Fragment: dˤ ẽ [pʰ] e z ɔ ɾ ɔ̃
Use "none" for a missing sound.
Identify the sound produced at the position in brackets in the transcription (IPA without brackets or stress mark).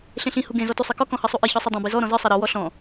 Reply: b